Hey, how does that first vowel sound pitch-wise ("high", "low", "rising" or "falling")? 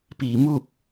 low